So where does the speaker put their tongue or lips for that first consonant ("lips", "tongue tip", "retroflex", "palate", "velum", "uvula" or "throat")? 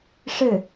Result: retroflex